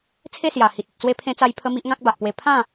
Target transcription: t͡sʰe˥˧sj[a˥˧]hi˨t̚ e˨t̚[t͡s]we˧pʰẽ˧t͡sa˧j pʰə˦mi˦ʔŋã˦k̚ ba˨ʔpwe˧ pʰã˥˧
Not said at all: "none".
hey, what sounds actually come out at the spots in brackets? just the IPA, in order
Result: a˨˩, t͡s

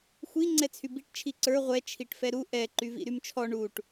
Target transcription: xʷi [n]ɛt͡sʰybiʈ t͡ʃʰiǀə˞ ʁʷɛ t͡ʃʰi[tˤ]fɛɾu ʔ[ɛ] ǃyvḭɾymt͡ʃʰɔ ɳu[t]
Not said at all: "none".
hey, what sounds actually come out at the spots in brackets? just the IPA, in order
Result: ŋ͡ǀ, ʈ, ɛ, ʈ

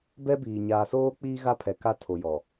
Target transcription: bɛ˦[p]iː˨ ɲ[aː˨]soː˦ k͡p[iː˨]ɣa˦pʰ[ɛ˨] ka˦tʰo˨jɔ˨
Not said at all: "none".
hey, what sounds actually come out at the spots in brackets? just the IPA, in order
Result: b, aː˨, iː˦, ɛ˨

